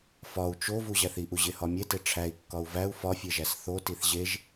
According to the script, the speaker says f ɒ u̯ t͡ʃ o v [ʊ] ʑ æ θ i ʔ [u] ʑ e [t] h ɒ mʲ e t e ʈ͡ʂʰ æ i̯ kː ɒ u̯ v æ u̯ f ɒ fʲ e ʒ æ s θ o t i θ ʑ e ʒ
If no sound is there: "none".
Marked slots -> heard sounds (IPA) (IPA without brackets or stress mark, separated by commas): u, u, none